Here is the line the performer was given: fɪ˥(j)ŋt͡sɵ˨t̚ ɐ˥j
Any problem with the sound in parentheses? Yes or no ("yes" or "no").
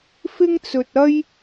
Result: yes